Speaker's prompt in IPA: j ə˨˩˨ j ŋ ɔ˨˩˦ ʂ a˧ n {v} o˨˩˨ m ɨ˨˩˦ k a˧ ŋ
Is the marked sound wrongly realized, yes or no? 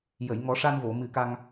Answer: no